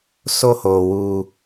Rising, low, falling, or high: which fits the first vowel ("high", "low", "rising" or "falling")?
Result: high